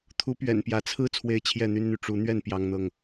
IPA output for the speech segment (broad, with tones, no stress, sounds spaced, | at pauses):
t̪ʰ u˨˦ p ɥ ɛ̰˨˩ n p j ä˨˦ t͡sʰ ɹ̩˦ t͡sʰ w e˦ ɪ̯ t͡ɕʰ j ɛ˥˨ n̪ y˦ n n̪ y˨ ʈ͡ʂ u˨˦ n̪ ɥ ɛ˥˨ n p j ɑ˦ ŋ n̪ ɤ˥˨ ŋ